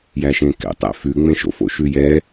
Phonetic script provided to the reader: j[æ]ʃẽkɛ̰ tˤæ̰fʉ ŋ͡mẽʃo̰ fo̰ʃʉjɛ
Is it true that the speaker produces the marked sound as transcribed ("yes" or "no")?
yes